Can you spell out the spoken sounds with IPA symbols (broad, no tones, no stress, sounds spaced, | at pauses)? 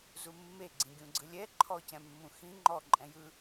z u mː e ɡ͡ǀ ĩ ɡʲ ũ ɡ͡ǀ ɯ lʲ ɛ ǃʰ ɔ c ɛ̃ mː ũ x ĩ ŋ͡ǃ ɔ ǃʼ ɛ̃ j ɯ